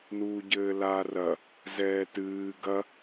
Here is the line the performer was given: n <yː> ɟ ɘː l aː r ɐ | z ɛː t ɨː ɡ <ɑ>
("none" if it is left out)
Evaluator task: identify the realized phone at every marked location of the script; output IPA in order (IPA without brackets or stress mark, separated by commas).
uː, ɐ